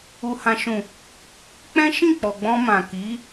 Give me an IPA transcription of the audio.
u˨ h ã˨ ʃ ũ˨ | k͡p ɛ̃˦ ʃ ĩ˦˨ k͡p ɔ˨ ɡ͡b ɔ̃˧ m ã˨ k i˨˦

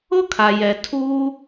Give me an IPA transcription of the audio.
ʊ˥ kʰ a˩ j ɛ˩ tʰ uː˥

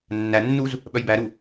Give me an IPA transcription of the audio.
nː æ nː u z | ɓ œ j b æ ɾ u

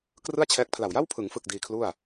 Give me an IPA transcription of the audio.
k r ɯ˥˩ a̯ t͡ɕʰ ɛː˦˥ k̚ pʰ l a˨˩ w j a˥˩ w pʰ ɯ˩˦ ŋ f ɯ˨˩ k̚ d iː˧ kʰ l u˥˩ a̯

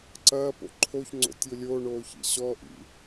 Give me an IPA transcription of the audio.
ǀ ɐː p o̰ ǃʰ o ç ŋ͡ǀ o̰ tʲ o lʲ oː ɳ oː ç ḭ ɕ ɔ ʔ ḭ

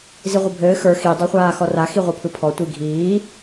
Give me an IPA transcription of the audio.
z i ʁʷ ɘ bʱ ɘː x ə˞ x i dˤ o χʷ aː x ɔ r a x i ʁʷ ə˞ pʰ ɯ pʰ ɔ tʷ i ɡʱ iː

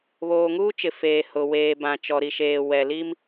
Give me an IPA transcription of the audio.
β oː˨ ŋ uː˦ t͡ʃ ɪ˨ f eː˨ h ʊ˨ w eː˨ b ã˨ t͡ʃ ɔ˨ ɾ i˨ ʃ eː˨ w ɛ˨ l i˦ m

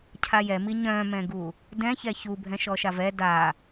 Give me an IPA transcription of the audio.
cʰ a j ɛ m i ɲ œ̃ m ɛ̃ ɡ u | d ɛ̃ ç ɛ ç u bʱ ɛ̃ ʃ ɔ ʃ a v ɛ d a

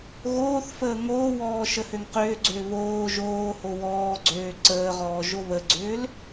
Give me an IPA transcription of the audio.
ɣ oː θ f əː ŋ oː w ɔː ʃ ə h ø ŋ q ʏː ɡ͡ǀ ʏː β oː ʒ oː h o w ɔː ɡ͡ǀ øː ǀ əː ʁ ɔː ʒ o β ə ɡ͡ǀ ʏː l

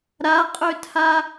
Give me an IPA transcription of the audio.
ɾ a qʼ ø tʰ a

